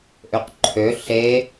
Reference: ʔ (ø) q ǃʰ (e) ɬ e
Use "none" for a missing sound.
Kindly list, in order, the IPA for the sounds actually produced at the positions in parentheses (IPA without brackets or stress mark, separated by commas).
ø, ø